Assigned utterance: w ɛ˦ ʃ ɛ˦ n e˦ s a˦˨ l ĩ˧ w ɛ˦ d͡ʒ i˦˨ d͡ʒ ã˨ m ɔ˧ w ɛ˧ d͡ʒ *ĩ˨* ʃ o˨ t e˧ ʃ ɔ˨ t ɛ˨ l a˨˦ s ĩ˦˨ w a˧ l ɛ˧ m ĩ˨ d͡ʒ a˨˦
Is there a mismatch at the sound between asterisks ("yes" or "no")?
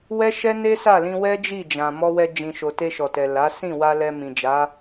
no